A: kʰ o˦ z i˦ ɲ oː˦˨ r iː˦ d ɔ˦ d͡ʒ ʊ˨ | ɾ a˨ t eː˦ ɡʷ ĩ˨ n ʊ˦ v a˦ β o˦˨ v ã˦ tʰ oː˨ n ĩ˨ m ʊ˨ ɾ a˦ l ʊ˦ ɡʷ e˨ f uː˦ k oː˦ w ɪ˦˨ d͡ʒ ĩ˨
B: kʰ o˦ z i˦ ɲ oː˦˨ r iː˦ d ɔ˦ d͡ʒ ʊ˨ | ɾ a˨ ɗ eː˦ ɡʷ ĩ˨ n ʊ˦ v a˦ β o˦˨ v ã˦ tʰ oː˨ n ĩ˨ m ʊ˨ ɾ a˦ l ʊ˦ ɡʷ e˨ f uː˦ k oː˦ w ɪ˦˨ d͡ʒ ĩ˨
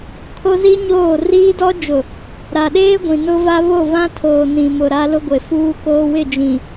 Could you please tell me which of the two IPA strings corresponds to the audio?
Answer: B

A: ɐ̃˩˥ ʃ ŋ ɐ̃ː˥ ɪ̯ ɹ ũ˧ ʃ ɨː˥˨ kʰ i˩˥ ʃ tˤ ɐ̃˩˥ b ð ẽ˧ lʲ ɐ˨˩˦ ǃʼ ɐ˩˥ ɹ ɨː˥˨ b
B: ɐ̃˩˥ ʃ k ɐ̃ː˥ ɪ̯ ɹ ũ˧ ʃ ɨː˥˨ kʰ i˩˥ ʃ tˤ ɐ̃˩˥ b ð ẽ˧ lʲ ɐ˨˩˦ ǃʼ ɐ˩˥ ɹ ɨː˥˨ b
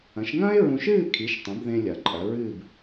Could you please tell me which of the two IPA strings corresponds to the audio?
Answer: A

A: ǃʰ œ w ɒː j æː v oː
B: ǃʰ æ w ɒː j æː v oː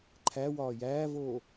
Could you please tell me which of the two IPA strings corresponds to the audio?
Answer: B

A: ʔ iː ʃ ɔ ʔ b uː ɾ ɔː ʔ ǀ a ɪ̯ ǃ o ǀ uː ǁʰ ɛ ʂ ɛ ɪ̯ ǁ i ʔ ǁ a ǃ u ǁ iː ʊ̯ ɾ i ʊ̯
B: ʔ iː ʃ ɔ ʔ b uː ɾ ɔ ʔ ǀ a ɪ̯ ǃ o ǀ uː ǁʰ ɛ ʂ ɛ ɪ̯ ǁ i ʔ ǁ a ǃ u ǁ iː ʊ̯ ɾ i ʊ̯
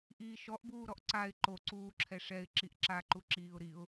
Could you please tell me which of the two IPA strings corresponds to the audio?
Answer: B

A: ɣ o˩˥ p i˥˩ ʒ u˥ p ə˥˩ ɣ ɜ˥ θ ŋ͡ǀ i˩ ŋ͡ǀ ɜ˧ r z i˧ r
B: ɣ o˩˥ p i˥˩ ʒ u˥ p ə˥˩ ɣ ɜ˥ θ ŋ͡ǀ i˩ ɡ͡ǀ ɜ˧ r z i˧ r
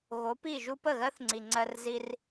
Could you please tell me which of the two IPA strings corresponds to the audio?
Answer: A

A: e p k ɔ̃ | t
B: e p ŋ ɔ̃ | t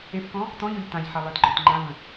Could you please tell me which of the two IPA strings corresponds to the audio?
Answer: A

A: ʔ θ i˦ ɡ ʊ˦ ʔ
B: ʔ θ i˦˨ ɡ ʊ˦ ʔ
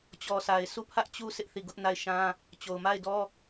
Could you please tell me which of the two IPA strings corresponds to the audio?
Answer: B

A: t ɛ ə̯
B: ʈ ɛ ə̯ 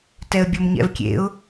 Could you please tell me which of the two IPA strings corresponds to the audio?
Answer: A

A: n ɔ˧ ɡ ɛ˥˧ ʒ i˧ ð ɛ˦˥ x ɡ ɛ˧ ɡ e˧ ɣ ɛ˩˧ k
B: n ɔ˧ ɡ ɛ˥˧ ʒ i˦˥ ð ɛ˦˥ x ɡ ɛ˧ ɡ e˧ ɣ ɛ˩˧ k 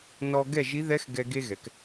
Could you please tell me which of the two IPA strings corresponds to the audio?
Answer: B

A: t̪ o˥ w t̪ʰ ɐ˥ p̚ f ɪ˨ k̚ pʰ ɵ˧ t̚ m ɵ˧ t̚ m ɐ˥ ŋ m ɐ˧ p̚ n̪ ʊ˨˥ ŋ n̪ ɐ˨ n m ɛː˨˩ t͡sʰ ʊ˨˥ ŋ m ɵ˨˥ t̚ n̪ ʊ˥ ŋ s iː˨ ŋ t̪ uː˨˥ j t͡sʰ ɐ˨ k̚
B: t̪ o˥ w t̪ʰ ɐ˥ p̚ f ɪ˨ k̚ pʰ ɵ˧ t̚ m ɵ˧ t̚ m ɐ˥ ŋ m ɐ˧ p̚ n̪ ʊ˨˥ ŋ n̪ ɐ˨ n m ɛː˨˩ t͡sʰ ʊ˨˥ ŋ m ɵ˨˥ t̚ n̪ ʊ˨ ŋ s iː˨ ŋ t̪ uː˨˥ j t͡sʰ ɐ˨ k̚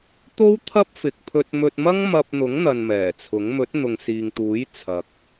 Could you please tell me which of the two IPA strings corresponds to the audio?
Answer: B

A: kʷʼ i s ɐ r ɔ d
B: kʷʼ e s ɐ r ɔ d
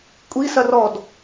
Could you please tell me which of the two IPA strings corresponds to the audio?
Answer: A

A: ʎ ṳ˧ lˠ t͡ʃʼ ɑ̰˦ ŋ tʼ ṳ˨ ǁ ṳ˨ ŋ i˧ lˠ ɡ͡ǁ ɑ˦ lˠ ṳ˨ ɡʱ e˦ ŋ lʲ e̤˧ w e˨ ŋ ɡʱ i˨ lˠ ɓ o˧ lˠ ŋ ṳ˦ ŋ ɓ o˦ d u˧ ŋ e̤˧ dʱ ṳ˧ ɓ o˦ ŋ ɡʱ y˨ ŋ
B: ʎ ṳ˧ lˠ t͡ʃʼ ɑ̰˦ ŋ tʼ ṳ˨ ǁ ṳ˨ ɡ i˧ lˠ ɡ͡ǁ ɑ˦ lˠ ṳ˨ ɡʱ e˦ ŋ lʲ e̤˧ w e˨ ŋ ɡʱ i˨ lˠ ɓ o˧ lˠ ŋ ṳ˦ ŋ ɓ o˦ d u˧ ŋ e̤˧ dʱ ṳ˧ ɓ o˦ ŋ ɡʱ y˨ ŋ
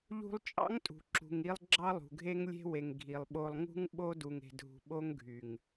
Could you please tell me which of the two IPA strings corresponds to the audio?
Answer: A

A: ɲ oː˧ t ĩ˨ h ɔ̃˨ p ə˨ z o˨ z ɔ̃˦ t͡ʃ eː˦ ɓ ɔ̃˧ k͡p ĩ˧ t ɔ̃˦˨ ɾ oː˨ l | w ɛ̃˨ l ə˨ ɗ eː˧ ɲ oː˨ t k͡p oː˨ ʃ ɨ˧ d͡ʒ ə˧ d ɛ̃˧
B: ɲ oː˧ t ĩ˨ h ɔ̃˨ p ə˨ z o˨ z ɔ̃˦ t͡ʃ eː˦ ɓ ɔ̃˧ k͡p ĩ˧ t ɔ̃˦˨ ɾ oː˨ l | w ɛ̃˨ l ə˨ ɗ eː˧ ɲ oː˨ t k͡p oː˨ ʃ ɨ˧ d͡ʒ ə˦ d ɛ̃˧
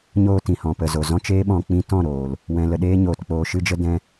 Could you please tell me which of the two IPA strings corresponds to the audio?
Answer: A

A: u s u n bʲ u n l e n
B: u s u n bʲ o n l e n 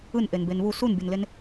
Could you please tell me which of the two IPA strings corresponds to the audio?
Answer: B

